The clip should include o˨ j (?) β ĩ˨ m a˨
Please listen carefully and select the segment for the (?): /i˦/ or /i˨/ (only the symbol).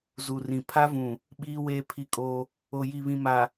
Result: i˨